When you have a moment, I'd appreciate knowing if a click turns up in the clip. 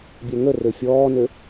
no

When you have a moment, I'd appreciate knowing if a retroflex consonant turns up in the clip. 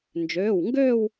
no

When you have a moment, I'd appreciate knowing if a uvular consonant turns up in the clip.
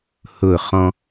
yes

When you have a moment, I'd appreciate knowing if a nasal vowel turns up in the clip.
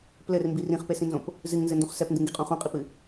yes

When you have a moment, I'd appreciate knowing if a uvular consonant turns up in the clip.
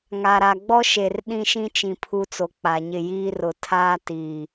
no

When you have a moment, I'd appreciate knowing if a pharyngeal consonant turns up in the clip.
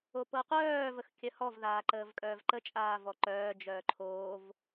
no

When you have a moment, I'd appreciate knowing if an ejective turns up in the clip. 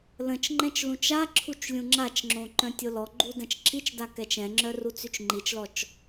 no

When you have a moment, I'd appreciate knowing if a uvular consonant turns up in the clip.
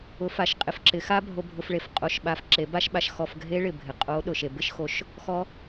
yes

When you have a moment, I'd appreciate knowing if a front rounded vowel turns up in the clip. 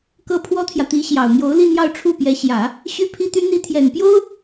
yes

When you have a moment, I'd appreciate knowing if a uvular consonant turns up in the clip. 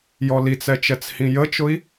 no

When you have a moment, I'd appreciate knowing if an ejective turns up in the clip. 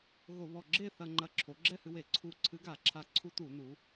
no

